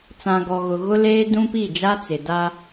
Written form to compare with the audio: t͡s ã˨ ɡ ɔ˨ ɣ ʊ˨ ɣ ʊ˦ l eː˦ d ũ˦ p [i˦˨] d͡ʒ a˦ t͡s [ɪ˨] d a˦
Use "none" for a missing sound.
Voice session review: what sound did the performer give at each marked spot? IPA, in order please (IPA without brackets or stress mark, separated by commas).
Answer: i˦˨, ɪ˨